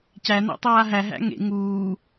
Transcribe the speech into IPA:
c æ n a̰ tˤ aː ɦ æ ɦ æ̰ ŋ ḛ ŋ uː

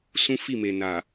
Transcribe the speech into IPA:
s ũ˦ f i˦˨ m e˨ n a˨

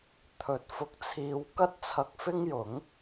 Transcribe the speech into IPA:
t̪ʰ ɵ˨˥ t̚ f ʊ˨˥ k̚ t͡sʰ iː˧ w k ɐ˥ t̚ t͡sʰ ɐ˧ k̚ f ɪ˥ ŋ j ʊ˨˥ ŋ

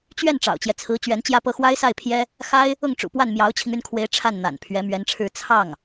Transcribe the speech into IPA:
t͡ɕ ɥ ɛ˥˩ n ʈ͡ʂ ɑ̰˨˩ ʊ̯ t͡ɕ j ɛ˦ t͡sʰ ɹ̩˧˥ t͡ɕ ɥ ɛ˧˥ n t͡ɕ j ä˥˧ p ɤ˥˩ x w a˥ ɪ̯ s a˥˩ ɪ̯ pʰ j ɛ˥ | x a˥ ɪ̯ | ʊ˥˩ ŋ ʈ͡ʂ ṵ˨˩ p w a˥˩ n m j ɑ˧˥ ʊ̯ t͡ɕʰ i˧ ŋ y˥˩ n kʰ w e˧˥ ɪ̯ ʈ͡ʂʰ a˥˩ n n̪ a̰˨˩ n pʰ ɥ ɛ˧˥ m ɥ ɛ˧˥ n ʈ͡ʂʰ ɻ̩˥˧ t͡sʰ ɑ˥˩ ŋ

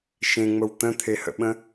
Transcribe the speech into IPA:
ʃ ẽ ŋ͡m ə w t̪ ə̃ t̪ʰ e h ə̰ ɓ ə̃

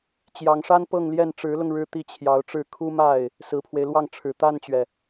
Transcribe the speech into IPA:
t͡ɕ j ɑ˧˥ ŋ ʂ a˥ n p ɤ˥˧ ŋ l j ɛ˥˩ n ʈ͡ʂ ɻ̩˧˥ l ʊ˧ ŋ ɻ ɻ̩˥˧ t̪ i˥˩ t͡ɕʰ j ɑ˧˥ ʊ̯ ʈ͡ʂ ɻ̩˥˩ kʰ u˥ m a˥˩ ɪ̯ | s ɹ̩˨˩ pʰ w e˦ ɪ̯ l w ɑ˥˩ ŋ ʈ͡ʂʰ ɻ̩˨˩ t̪ a˥˩ n t͡ɕ ɥ ɛ˩

